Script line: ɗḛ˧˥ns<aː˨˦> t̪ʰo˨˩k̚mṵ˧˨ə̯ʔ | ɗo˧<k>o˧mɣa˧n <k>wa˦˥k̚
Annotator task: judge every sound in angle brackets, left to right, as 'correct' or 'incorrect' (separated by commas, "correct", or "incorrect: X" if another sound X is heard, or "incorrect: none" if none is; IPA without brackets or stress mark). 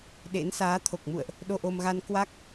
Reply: correct, incorrect: ʔ, correct